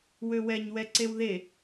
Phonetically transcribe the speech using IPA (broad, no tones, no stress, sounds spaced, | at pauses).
w ø w ɛ ɲ w ɛ ǀ e w ð e